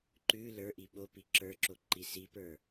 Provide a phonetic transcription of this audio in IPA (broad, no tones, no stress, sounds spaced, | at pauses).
ǃ ʉ l ə˞ ʔ i ɓ o p i ǁ ə˞ ǁ o ǃ i s i p ə˞